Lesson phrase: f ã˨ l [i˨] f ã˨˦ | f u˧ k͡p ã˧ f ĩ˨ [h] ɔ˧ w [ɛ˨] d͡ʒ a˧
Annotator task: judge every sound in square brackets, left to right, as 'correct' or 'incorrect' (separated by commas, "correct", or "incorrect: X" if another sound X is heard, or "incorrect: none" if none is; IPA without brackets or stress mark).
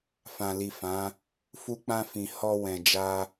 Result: correct, correct, incorrect: ɛ̃˨